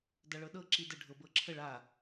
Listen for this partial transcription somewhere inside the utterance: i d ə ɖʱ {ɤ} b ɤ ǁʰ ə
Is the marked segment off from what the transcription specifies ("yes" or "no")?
no